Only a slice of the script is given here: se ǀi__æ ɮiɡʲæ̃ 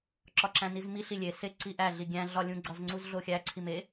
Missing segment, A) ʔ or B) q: A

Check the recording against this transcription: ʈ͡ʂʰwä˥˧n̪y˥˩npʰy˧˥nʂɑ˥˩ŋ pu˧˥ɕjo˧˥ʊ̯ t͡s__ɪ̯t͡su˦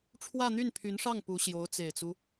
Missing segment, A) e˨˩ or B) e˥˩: A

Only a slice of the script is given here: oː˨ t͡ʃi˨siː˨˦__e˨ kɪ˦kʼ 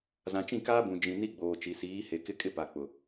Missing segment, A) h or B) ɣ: A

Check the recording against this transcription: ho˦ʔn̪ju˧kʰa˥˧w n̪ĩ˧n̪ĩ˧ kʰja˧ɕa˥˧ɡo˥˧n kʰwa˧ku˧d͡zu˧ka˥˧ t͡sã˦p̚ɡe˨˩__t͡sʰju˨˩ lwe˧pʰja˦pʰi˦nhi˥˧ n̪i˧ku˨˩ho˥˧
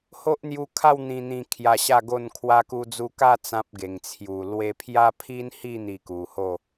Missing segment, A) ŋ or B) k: A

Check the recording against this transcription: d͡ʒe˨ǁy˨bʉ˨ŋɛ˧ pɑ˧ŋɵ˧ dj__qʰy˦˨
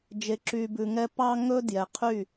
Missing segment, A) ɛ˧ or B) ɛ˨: B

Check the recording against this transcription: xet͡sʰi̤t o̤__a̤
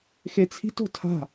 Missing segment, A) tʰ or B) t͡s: A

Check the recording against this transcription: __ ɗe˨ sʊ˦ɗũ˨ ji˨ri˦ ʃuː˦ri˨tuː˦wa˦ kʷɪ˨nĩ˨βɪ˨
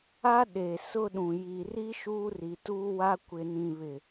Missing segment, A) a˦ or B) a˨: A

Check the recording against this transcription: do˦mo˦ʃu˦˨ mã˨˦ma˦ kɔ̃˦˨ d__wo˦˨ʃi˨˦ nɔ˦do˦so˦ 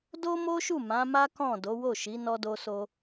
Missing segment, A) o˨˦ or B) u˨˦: A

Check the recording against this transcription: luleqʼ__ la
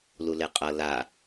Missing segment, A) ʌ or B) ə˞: A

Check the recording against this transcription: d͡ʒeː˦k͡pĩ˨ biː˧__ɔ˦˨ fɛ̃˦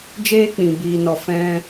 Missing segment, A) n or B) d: A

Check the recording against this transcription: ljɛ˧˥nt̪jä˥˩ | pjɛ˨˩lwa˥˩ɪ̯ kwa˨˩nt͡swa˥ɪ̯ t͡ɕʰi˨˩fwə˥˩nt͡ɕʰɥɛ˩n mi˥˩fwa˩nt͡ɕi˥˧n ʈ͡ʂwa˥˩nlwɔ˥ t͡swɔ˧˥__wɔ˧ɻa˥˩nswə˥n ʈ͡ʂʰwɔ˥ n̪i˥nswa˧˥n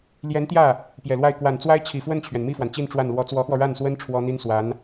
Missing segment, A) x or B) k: A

